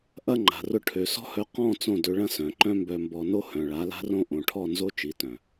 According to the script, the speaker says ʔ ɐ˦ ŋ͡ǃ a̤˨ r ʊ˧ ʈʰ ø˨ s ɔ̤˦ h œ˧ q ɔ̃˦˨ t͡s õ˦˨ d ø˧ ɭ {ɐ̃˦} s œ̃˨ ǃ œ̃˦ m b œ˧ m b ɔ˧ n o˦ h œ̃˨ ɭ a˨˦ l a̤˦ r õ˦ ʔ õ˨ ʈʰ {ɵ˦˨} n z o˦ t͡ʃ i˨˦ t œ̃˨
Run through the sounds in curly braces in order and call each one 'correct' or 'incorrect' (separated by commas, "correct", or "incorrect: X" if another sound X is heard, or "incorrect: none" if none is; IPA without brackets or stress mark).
correct, incorrect: ɔ˦˨